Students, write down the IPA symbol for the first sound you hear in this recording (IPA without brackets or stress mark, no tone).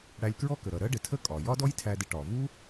ɽ